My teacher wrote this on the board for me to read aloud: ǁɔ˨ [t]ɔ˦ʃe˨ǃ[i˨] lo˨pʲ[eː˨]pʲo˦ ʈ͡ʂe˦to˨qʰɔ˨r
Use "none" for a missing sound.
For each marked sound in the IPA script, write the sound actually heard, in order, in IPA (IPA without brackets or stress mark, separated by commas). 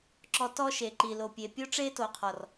t, i˨, e˨